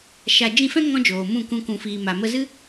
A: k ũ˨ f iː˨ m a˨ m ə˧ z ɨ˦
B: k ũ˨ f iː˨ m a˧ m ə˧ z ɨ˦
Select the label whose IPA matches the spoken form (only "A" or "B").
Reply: A